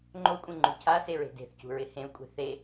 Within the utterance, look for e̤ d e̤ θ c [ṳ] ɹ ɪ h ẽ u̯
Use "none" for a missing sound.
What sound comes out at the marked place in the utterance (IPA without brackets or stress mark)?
ṳ